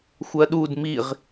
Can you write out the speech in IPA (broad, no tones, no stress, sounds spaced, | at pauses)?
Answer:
xʷ ɜ ɗ u d m i ʁ